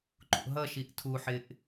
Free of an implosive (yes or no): yes